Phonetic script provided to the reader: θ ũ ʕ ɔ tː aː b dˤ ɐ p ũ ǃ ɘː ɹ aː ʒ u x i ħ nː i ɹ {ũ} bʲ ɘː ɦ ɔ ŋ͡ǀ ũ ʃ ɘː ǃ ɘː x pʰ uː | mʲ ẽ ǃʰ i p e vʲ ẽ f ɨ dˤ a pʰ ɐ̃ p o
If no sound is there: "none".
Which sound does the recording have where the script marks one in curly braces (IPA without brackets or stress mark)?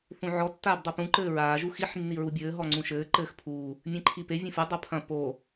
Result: u